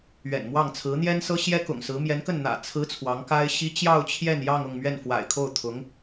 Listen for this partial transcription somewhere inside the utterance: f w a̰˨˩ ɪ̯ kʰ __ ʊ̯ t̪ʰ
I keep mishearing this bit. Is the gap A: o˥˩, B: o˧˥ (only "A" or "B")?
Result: A